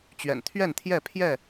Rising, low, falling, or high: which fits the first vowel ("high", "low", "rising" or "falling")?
low